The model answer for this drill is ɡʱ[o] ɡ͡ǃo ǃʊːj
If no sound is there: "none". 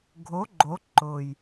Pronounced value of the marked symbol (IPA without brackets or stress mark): o